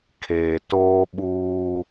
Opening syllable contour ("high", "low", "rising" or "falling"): low